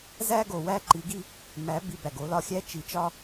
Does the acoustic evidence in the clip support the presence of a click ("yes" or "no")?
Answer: yes